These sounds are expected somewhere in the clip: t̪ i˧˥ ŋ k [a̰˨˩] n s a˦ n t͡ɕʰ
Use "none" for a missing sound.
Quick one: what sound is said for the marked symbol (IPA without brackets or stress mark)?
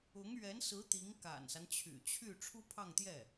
a̰˨˩